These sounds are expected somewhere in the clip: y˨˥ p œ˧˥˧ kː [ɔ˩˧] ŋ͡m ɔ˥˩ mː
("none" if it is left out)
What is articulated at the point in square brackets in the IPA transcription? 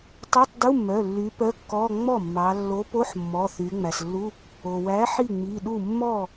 ɔ˧˥˧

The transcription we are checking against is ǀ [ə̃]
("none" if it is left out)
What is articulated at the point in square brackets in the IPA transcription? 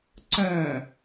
œ̃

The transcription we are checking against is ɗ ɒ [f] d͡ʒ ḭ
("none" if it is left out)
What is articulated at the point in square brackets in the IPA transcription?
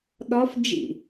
f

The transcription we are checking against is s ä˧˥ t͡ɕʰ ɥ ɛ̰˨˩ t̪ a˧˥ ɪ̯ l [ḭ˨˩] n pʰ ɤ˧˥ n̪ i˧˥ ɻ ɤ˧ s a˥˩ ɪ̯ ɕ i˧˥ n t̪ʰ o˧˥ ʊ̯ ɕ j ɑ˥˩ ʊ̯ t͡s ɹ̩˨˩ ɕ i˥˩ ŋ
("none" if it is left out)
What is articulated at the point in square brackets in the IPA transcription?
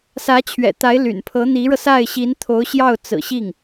y̰˨˩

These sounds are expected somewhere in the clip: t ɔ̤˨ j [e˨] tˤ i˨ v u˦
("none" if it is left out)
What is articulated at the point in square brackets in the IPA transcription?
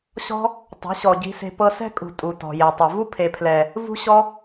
e˨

